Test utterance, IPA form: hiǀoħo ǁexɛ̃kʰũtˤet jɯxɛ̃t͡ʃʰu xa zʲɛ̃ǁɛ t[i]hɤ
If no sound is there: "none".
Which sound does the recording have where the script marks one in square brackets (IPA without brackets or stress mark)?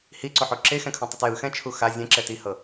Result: i